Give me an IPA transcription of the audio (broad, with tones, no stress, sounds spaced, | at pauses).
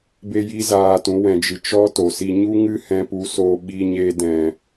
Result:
b e˦ j i˦ z aː˧ t ũ˨˦ w ɛ̃˧ d͡ʒ ɨ˧ t͡ʃ ɔ˦ t o˨ s i˧ ɲ u˦ ŋ ɨ˦ h ɛ̃˧ p u˨˦ s oː˧ ɓ iː˧ ɲ eː˧ d ɛ̃˨